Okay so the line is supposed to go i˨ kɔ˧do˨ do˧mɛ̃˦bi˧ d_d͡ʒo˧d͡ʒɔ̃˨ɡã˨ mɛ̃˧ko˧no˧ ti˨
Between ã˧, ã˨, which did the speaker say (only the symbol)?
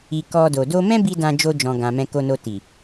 ã˧